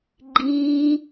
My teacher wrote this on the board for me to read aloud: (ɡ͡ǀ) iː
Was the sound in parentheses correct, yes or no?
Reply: no